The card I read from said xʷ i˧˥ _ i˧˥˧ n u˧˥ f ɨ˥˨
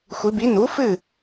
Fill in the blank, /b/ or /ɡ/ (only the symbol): b